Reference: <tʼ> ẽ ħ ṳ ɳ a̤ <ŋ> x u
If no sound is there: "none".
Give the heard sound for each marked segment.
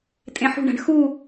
tʼ, ɳ

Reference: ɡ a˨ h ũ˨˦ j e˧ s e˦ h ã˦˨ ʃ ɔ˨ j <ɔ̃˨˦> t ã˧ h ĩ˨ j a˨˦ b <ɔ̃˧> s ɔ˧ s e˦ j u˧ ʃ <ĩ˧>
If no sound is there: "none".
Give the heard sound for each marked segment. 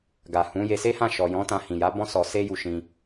ɔ̃˨˦, ɔ̃˦, ĩ˧

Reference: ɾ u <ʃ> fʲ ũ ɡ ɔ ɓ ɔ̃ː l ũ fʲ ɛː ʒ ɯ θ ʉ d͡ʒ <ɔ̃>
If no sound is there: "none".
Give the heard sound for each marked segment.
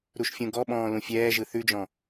ʃ, ɔ̃

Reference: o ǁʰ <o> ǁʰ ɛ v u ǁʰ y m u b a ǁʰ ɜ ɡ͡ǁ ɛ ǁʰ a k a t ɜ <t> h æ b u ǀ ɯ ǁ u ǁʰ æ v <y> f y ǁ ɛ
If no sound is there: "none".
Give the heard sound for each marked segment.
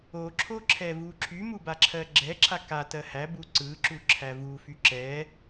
o, none, u

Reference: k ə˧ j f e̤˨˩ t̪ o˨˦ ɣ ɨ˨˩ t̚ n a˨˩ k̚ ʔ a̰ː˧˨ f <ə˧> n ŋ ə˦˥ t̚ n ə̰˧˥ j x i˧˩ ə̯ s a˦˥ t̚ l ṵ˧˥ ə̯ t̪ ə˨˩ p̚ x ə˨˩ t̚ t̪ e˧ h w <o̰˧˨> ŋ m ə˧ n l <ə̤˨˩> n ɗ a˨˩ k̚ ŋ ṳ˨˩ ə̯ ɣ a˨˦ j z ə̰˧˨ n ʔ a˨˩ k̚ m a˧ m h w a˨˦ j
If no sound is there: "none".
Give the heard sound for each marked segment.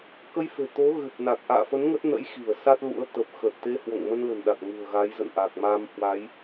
ə˨˦, o̰˧˨, ə̤˨˩

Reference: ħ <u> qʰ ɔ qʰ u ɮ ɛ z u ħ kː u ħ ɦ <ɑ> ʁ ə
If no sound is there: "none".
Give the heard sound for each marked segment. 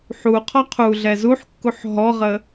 u, ɔ

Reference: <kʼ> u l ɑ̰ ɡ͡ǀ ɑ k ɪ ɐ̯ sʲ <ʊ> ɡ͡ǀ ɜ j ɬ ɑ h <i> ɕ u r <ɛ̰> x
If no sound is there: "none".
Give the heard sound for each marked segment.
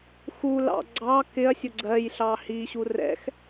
x, ʊ, i, ɛ̰

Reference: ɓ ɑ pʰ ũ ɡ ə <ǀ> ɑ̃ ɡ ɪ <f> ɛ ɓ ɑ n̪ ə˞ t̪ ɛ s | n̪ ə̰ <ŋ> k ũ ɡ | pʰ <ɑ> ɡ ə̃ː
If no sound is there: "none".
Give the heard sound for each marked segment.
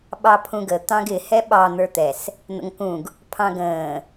t̪, h, ŋ, ɑ̃

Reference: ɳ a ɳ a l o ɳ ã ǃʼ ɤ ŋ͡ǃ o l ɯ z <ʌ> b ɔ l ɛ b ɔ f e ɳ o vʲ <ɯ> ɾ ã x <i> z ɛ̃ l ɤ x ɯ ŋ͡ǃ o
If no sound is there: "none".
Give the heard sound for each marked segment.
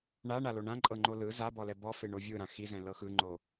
a, ɯ, i

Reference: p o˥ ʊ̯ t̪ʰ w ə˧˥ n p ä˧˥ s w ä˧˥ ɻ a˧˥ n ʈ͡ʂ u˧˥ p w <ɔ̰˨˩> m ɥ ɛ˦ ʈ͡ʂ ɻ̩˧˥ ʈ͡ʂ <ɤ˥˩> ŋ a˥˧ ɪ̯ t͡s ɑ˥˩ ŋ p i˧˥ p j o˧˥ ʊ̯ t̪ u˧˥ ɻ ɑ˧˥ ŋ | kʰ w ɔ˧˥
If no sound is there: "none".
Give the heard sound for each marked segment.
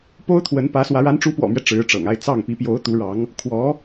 ɔ̰˨˩, ɤ̰˨˩

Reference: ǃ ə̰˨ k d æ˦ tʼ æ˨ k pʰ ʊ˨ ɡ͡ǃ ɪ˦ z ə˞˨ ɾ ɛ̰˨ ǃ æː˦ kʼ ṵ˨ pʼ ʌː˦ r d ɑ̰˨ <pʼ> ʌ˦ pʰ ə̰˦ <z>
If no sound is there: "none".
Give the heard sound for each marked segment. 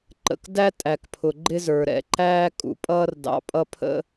pʼ, none

